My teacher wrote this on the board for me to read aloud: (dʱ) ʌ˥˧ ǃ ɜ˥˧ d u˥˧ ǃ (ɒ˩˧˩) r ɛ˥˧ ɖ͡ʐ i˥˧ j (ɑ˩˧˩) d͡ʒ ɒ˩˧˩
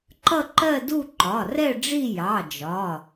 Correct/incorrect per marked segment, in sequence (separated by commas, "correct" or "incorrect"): incorrect, correct, correct